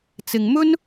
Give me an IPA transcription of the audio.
t͡sɪ˨ŋ mɵ˥n

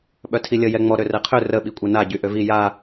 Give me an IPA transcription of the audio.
ɓœtʰilʲə jɛŋ͡mɔ ɾørɛqʰø rə ɓikʷʼena ɟyʔøvi ja

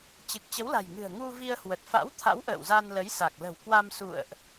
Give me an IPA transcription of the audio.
t͡ɕɨ˨˩k̚t͡ɕə˨˦wla̤˨˩jŋɨ̤˨˩ə̯ ŋu˧vi˧ə̯ hwə˨˩t̚fa̰˧˥wt̪ʰa̰˧˥w ʔə̰ː˧˨wza˧nlə˨˦j sa˨˩k̚lə̤˨˩w kwa˧m sṵ˧˨ə̯ʔ

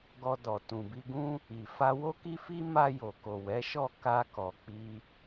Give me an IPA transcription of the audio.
ɡɔ˧dɔ˨ tũ˨bi˧ɡũ˦ | i˨ fa˧wo˦ki˦fi˦ ma˧jo˨ko˨ wɛ˨˦ʃɔ˦˨ ka˧kɔ˨k͡pi˧

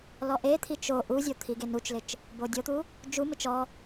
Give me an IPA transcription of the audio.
lɔʔet̪ʰi t͡ʃo ʔuzʲo t̪ʰiɡenut͡ʃlɪt͡ʃ | bodʲot̪u | d͡ʒumɪt͡ʃ ɔ

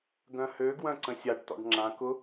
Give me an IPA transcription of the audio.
ɡœ̃hø ɡwœ̃ǀə̃sʲaɖ tɔ̰ɖŋ͡ǁã kʊ

